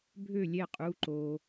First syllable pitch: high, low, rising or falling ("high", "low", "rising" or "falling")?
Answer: falling